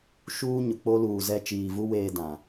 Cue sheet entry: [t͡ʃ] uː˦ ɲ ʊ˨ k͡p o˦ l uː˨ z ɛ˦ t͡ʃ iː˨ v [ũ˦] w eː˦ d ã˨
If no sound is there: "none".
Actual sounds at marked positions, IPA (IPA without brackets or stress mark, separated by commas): ʃ, u˦